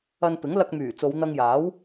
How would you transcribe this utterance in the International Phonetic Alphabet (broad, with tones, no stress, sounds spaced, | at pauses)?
ɐ˧ n p ɪ˨˥ ŋ l ɐ˧ k̚ m yː˨˩ t͡s o˨˧ w n̪ ɐ˧ ŋ j aː˨˥ w